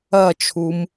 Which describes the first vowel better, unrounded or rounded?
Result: unrounded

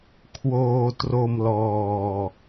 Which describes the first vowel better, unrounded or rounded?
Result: rounded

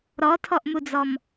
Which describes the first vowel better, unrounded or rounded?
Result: rounded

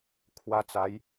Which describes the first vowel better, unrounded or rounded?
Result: unrounded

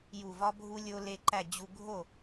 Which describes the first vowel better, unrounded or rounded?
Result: rounded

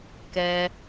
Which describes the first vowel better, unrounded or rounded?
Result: unrounded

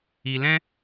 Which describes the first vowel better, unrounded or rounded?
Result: unrounded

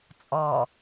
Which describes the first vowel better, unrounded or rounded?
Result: rounded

